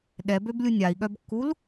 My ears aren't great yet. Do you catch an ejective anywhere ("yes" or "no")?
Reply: no